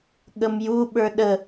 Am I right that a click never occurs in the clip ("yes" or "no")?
yes